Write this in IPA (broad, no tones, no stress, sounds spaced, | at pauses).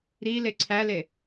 ɾ i l e ǀʰ æ l e